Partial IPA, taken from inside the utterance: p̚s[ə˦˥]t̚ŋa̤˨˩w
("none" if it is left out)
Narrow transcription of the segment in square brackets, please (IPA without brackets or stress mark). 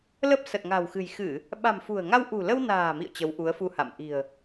ə˨˩